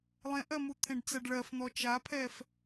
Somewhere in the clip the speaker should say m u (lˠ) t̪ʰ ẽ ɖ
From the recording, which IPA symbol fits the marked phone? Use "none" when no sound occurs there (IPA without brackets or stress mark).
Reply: none